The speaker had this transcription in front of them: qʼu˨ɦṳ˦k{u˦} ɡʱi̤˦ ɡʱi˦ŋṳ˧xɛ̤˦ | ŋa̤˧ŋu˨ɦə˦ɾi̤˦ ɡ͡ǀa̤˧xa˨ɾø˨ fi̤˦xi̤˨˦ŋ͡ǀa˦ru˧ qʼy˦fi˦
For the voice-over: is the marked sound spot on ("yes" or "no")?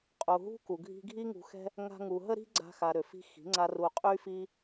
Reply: no